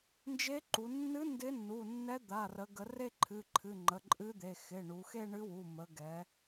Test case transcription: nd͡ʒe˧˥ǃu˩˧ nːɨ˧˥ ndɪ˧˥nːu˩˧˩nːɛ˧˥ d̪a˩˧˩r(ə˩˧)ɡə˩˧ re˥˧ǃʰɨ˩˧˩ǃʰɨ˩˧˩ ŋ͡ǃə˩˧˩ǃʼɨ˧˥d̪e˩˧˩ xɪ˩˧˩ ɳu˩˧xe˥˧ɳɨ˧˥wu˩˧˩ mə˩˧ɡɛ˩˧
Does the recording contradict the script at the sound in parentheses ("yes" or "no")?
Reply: no